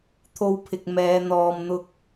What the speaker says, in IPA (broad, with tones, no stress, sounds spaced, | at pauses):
t̪ʰ o˧ w pʰ ɪ˨ k̚ m ɛː˨˧ n̪ ɔː˨ m n̪ ʊ˧ k̚